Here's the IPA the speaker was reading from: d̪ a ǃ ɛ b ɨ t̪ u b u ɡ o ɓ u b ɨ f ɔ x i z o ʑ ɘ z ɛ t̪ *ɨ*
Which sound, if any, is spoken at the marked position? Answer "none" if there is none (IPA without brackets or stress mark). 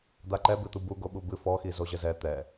ɛ